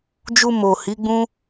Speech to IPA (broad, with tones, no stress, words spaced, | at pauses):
d͡ʒu˧mo˨ hi˨˦ɡ͡bũ˦